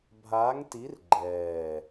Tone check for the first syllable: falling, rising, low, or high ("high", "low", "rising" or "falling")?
rising